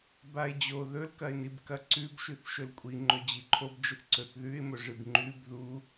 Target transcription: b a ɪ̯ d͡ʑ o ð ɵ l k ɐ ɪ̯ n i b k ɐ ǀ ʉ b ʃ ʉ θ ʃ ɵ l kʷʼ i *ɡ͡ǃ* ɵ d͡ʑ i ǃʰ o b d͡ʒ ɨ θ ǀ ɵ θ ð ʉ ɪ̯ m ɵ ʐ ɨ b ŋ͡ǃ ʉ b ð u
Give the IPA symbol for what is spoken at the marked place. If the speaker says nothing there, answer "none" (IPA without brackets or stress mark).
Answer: ŋ͡ǃ